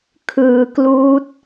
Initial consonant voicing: voiceless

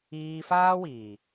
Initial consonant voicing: voiceless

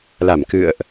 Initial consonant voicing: voiced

